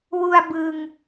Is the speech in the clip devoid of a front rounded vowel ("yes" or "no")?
yes